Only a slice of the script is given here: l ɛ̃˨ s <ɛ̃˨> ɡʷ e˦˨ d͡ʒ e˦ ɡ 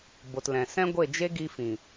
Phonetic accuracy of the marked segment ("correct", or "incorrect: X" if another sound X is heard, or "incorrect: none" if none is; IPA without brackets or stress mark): incorrect: ɛ̃˦